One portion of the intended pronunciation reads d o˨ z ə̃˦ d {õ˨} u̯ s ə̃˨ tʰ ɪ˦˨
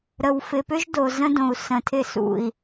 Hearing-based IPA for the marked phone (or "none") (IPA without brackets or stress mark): õ˨